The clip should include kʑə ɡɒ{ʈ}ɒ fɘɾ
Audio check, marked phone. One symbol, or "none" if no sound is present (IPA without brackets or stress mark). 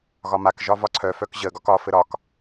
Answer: k